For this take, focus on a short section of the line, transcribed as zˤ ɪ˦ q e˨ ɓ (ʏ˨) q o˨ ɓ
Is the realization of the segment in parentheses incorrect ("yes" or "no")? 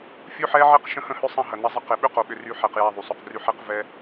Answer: yes